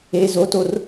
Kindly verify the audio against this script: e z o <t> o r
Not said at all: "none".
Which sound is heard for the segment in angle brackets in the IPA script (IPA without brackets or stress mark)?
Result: t